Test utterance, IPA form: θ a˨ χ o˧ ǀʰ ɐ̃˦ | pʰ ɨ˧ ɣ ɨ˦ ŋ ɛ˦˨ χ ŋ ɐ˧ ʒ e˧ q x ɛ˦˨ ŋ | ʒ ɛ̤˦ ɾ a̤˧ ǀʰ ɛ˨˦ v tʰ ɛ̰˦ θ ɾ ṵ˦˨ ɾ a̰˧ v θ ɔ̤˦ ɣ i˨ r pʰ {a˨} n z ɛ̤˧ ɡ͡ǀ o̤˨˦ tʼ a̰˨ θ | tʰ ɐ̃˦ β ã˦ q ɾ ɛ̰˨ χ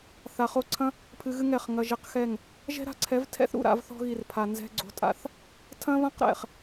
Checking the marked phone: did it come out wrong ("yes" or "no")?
no